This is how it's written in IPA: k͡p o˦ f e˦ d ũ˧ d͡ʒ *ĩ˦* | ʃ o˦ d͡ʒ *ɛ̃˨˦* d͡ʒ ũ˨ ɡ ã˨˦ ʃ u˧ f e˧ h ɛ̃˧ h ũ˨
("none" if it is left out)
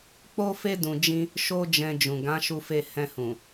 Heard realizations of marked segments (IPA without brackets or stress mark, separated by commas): ĩ˦, ɛ̃˧